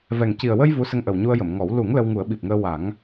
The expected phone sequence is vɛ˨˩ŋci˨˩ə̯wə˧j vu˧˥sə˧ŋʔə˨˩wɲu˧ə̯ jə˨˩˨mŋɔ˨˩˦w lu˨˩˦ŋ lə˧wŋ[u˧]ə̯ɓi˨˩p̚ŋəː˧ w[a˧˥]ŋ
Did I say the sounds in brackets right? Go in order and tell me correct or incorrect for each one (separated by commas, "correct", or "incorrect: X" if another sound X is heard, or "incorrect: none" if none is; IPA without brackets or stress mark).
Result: incorrect: u˨˩˦, incorrect: a˨˩˦